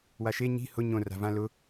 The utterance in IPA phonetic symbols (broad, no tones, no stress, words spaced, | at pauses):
waʃe ɲi̤ hʊ ɲõra̤vã lʊ